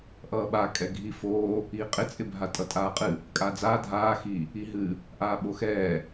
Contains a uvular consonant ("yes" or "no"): yes